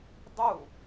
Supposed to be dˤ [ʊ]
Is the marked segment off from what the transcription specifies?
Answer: yes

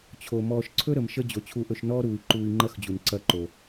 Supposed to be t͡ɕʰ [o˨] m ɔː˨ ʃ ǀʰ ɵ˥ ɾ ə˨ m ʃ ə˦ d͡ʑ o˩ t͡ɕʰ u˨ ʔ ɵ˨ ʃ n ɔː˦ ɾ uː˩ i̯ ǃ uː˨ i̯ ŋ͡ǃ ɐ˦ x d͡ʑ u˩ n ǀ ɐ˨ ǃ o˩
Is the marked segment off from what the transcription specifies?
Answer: yes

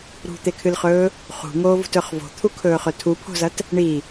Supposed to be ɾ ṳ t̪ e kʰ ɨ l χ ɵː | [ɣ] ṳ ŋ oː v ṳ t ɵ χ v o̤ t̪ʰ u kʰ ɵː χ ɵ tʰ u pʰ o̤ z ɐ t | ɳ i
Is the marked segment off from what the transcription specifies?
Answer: yes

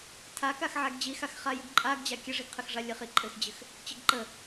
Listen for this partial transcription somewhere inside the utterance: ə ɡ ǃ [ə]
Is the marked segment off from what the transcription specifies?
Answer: no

